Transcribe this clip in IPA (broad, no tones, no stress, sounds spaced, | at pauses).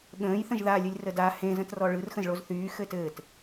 ɠ ə̃ː j θ ə̃ ʒ ð a lʲ ɯ lʲ r ə d a h ẽ z ə̃ t r ɔ ɭ ɯ r x ə̃ z ɭ o z θ yː x ɘː t ɘː t